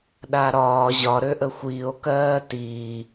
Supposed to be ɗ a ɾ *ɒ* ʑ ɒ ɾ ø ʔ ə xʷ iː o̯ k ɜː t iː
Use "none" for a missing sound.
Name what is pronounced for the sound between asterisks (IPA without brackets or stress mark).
ɒː